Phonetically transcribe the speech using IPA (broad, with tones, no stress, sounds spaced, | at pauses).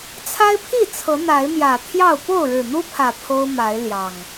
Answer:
t͡sʰ a˦ ɪ̯ pʰ i˥˨ t͡sʰ ɤ˨˦ n̪ a˨˦ ɪ̯ m j ä˨˩ t̪ʰ j ɑ˥˨ ʊ̯ p o˥˨ ʊ̯ ɻ ɻ̩˨˩ n̪ u˦ pʰ ä˨˩ pʰ o˦ ʊ̯ m a˨˦ ɪ̯ l j ɑ˨˩ ŋ